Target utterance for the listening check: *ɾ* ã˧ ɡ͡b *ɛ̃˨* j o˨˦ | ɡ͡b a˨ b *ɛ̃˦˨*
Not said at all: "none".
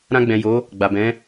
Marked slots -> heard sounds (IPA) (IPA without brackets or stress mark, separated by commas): ɾ, ɛ̃˨, ɛ̃˨˦